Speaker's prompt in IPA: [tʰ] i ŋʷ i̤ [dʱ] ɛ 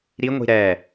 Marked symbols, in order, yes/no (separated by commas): no, no